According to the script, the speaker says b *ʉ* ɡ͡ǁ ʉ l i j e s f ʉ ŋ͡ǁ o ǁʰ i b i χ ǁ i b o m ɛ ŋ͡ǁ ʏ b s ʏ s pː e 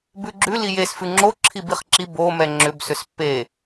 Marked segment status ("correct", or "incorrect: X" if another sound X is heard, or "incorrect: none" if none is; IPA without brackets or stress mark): correct